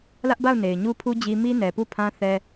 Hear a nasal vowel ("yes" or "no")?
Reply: yes